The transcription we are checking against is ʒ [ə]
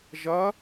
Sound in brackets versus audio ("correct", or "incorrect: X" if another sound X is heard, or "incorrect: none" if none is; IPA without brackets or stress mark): incorrect: ɐ